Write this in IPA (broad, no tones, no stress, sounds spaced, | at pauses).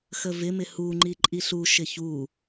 x ə v ɪ m ɪ h u ŋ͡ǃ i ǃʼ i ɬ u ʃ ɪ ç u